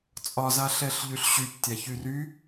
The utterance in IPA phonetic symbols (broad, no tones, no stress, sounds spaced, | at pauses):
t͡sʼ ɒ z a ɬ ɛ ɬ ʎ y ɬ ɕ y p tʲ a ç y r y